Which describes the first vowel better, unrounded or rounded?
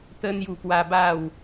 unrounded